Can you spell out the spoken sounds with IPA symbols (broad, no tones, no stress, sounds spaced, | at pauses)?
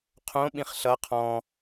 qʰ õ ɓ ĩ χ ɬ ʌ qʰ ɔ̃